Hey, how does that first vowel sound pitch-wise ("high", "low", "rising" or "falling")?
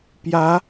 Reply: rising